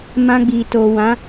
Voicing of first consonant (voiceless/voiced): voiced